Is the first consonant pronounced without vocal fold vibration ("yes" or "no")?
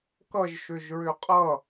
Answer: yes